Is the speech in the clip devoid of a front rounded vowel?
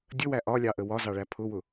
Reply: yes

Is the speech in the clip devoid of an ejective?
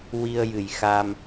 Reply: yes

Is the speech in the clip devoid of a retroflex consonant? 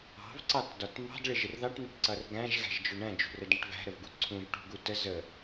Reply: no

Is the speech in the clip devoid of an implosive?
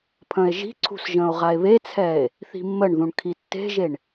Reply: yes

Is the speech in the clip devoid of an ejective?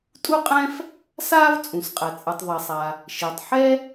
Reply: no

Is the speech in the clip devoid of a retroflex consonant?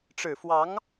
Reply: no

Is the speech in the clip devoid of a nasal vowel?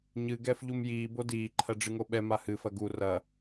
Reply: yes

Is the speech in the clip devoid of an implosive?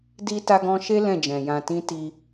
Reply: yes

